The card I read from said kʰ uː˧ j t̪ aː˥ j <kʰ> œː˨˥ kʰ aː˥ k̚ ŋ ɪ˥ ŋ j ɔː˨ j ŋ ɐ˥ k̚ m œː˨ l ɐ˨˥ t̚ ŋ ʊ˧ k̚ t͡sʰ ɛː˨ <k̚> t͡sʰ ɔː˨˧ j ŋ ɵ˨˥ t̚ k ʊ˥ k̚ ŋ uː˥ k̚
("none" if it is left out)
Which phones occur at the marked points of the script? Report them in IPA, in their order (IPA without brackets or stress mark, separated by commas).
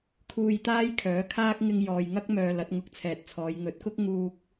kʰ, t̚